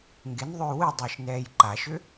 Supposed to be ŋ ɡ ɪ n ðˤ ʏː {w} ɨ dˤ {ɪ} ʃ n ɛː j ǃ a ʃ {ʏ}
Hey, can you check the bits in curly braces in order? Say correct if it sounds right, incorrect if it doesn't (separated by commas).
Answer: correct, incorrect, correct